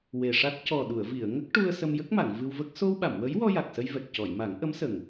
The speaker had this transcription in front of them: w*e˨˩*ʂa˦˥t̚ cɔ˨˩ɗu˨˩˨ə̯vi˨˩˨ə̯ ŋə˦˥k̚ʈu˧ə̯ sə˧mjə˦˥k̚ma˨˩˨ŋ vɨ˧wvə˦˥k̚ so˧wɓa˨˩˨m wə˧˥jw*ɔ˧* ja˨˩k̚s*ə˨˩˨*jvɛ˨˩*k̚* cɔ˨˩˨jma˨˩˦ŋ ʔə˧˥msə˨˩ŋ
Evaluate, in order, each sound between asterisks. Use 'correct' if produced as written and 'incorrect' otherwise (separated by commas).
correct, correct, incorrect, correct